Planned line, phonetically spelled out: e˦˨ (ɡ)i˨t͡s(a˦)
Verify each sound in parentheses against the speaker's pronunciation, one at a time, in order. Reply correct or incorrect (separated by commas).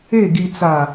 correct, incorrect